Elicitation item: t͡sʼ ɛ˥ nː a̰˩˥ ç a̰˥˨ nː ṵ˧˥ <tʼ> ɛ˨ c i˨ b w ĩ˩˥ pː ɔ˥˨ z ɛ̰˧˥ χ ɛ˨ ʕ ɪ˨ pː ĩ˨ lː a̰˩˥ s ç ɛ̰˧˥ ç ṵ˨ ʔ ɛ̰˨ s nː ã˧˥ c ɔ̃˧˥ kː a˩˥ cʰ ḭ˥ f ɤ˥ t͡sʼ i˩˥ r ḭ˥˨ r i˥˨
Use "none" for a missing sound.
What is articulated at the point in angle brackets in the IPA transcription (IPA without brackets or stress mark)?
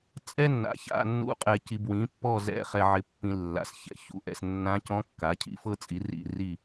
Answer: qʼ